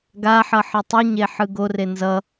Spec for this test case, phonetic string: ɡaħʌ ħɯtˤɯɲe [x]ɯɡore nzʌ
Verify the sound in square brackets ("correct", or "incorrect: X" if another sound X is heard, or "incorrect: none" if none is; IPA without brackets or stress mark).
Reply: incorrect: ħ